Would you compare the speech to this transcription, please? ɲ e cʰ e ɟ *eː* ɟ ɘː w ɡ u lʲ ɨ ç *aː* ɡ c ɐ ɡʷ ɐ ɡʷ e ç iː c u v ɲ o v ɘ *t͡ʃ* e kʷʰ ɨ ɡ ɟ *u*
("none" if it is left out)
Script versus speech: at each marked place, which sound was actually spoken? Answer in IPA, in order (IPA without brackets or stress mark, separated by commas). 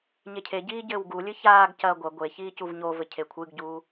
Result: iː, aː, cʰ, uː